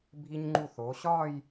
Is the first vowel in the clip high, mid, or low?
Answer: high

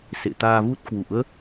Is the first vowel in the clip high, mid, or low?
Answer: mid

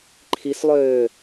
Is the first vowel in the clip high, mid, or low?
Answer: high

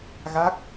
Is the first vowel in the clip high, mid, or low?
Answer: low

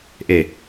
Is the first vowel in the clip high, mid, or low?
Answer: mid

